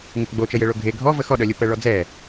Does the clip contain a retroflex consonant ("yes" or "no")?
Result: yes